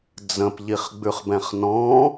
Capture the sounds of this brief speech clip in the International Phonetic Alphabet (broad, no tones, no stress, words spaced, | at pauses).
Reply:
d͡zə̃pʎiχɡ͡bʉχbɛ̃χ nɔ̃